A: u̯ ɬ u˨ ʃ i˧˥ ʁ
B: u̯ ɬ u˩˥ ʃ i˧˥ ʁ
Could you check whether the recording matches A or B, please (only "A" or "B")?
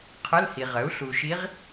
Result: A